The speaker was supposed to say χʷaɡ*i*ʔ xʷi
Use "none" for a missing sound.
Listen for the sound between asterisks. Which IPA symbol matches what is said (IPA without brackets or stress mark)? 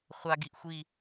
i